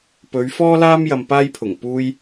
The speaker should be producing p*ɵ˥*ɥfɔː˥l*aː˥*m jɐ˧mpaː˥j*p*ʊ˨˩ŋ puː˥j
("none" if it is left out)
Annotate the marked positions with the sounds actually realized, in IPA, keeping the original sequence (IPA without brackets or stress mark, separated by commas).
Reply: ɵ˨˧, aː˥, pʰ